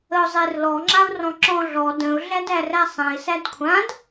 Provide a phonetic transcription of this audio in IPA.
ə ʊ̯ zˤ e r l ɔ ŋ͡ǁ a ʊ̯ r ɔ̃ ǁ ɔ̃ ɮ ɔ d ə̃ ʊ̯ ɮ æ d æ r æ sˤ æ̃ ɪ̯ s æ d kʷʰ ã d

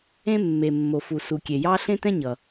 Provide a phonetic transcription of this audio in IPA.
ẽ˥ mː e˩ mː o˩ f u˩ s u˩ kʲ e˩ j ɑ˥ ɬ ẽ˥ t ɛ̃˥ ɲ ʌ˩

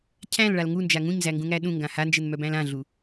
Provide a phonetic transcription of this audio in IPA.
cʰ æ̃ l ɭ a l ŋ u n d͡ʒ a ŋ ũ ɲ z æ ŋ ɡ ũ ŋ æ ɗ ũ ŋ ɡ ã h a n d͡ʒ ɘ n m œ b æ̃ l ã ɮ u

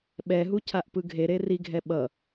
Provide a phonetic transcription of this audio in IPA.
ɓ ɛ ɦ u cʰ a ʔ p ɯ ɡʱ e ɾ e r i ɡʱ ɛ ɓ ʌ

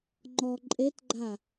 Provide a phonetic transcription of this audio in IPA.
ŋ͡ǃ ɔ ǃʼ e t ɡ͡ǃ a

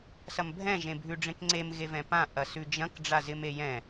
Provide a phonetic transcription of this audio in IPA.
s ɐ m bʱ ɛ̃ ʒ ẽ bʱ ʉ ɖ͡ʐ ẽ k ŋ͡ǀ e m ɣ e v ɛ̃ p ã ʔ ɐ s ʉ d͡ʒ ɐ̃ k ɖ͡ʐ a z ɪ m e j ɛ̃

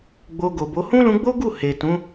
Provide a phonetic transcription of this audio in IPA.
ɡ͡b o˧ ɡ o˨ b o˨˦ h ũ˦ l ũ˧ ɡ͡b o˦ ɡ u˦˨ h e˨ t ũ˨˦

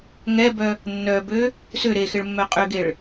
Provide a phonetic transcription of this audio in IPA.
ŋ ɛ b œ | nː œ b ø | s ʏ ɾ e x ɪ ɭ mː œ qʼ ø ɡ e ɭ

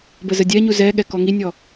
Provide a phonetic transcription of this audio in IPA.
b ə z ə dʲ ɛ ɲ u z ɛ ɠ ɛ k ɔ ŋ i nʲ ɔ

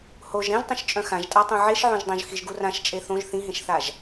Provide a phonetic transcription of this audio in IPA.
h o ʒ ɾ ẽ ʒ tˤ ĩ ʃ t͡ʃʼ œ̃ x ã ʒ tʼ a tˤ õ ʕ e ʃ ʕ õ ʒ dˤ õ ʒ x i ʒ ɡ u r ã ʃ t͡ʃʼ e θ õ ʒ θ ĩ ɦ ẽ ʃ θ a ʒ

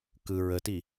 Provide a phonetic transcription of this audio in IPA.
k ɯ ɹ ə t i

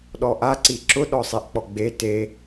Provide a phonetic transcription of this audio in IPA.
ɗ ɔ ʔ a ǀ i ǁ ʊ ɗ ɔ sˤ e ʔ k͡p ɔ ɡ͡b e t e

